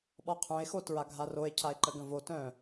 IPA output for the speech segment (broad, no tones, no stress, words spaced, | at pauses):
ɓɔqʰœ̃e̯xo tɹaɡʱaroe̯ cʰae̯ǃəɡə̃vo tœ̃